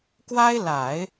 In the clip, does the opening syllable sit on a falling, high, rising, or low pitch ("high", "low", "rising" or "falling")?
high